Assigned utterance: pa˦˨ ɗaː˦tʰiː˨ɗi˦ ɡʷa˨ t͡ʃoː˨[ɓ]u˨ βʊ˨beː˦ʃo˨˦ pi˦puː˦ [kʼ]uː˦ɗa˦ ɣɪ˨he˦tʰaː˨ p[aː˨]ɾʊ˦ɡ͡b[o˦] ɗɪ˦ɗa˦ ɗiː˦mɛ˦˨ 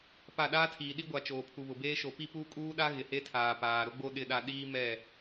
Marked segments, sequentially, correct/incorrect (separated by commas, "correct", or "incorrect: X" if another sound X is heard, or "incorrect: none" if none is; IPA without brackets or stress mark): incorrect: pʰ, correct, correct, correct